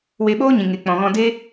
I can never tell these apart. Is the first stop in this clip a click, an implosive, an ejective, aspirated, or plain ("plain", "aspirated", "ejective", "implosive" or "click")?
implosive